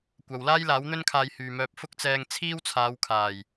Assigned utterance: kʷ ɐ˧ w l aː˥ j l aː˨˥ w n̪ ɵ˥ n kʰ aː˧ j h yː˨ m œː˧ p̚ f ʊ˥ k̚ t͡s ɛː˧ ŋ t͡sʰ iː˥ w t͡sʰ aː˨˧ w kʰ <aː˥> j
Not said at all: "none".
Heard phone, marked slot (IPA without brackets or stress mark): aː˨˩